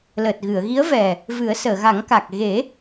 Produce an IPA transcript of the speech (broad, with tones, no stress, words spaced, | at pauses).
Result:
ləː˨˩t̚ɣɨ˨˩˨ə̯ɣi˧˥ə̯ vɛ˨˩ | vɨ˨˩˦ə̯səː˨˩˨ɣa˨˩˦ŋka˨˩k̚ ɣe˨˩˦